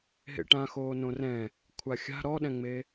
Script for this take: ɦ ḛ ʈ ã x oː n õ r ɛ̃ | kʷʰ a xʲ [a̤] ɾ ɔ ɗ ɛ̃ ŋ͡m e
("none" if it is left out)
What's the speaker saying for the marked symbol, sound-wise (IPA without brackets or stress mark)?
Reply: a̤